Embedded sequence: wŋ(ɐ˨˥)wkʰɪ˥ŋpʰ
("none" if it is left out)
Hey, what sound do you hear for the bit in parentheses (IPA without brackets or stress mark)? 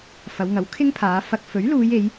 ɐ˨˥